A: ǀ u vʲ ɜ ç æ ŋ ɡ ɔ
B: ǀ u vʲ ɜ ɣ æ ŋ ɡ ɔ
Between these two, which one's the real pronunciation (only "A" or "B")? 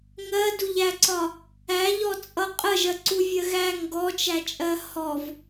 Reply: B